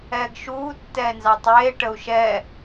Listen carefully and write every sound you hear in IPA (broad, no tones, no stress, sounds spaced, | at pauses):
ɛː ɡ ʃ uː tː ɛː n z ɑ tˤ eː ʈ ə u̯ ʃ ɛː